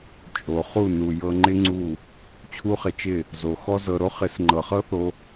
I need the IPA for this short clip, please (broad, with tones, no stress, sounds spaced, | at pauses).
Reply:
t͡ʃʼ o˨ χ u˦˨ n u˨ j ɤ˧ ŋ͡ǃ ɪ˦ ŋ͡ǀ u˦˨ | t͡ɕʰ u˦ χ ɪ˧ t͡ʃ ɪ˦˨ | z o˨ x ɔ˦ z ɤ˧ ɾ o˦ χ ɪ˨˦ s ŋ͡ǃ ɤ˨ χ ɤ˦ θ o˧